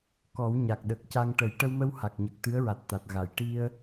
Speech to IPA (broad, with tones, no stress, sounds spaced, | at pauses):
k ɔ˨˩˦ w ɲ a˨˩ k̚ ɗ ə˨˩ k̚ c a˧ ŋ ʈ ə˨˩˦ j ʈ ə˧ w m ə˧ w h a˨˩ k̚ ɲ ə˨˩ k̚ t̪ ɨ˧˥ ə̯ ɹ a˨˩ t̚ t̪ a˨˩ t̚ ɣ a˨˩˨ j ʈ i˧ ə̯